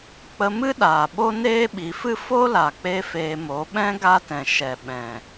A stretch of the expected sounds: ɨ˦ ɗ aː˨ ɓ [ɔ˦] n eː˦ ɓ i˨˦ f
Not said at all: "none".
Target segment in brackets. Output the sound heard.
o˦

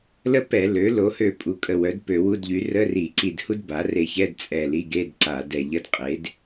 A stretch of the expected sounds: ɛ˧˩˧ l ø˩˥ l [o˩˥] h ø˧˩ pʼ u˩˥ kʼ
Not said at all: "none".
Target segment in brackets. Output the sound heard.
o˩˥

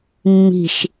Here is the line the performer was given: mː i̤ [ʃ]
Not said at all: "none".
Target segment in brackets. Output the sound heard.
ʃ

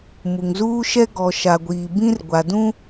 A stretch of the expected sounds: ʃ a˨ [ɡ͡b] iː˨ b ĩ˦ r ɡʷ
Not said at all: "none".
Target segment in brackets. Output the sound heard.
ɡʷ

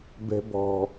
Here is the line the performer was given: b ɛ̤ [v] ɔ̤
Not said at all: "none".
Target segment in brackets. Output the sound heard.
b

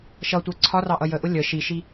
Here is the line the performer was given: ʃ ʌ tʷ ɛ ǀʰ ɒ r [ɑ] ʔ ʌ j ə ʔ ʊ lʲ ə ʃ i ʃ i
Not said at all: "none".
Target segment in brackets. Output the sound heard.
ɑ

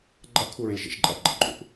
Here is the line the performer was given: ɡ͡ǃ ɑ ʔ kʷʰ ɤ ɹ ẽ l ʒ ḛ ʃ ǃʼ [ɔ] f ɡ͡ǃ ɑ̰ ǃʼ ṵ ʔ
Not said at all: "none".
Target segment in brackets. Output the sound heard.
ɑ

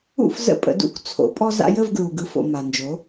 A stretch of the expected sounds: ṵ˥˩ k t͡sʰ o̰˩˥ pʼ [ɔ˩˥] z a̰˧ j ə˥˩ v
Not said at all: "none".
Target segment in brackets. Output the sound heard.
ɔ˧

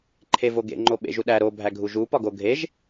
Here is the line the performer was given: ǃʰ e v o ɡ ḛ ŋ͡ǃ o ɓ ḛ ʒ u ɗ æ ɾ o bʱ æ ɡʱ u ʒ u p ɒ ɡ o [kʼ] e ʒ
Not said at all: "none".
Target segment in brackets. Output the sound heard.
ɡʱ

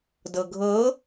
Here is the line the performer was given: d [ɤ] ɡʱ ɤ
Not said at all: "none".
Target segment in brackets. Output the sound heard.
ɤ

